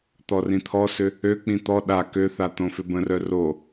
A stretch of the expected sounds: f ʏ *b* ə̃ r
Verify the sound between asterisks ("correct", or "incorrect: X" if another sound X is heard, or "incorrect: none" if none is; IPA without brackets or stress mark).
correct